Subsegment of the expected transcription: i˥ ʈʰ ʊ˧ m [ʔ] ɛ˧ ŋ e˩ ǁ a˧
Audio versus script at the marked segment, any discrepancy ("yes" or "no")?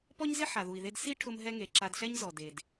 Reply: yes